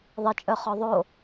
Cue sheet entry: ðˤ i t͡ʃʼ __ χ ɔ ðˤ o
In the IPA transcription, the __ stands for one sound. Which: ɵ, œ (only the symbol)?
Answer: œ